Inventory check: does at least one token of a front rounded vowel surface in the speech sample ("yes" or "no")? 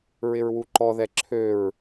yes